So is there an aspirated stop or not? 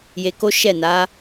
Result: no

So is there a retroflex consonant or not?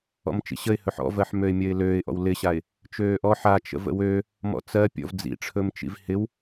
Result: yes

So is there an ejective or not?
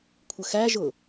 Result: no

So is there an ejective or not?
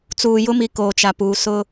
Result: no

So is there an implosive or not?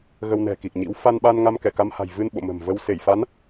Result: yes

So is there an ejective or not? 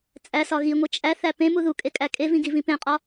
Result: yes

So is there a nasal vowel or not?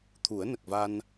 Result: no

